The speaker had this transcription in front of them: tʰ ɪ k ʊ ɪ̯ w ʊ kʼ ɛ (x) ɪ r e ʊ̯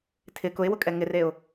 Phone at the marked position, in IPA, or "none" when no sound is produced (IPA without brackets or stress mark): ŋ